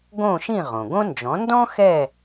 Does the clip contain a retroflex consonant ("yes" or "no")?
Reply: no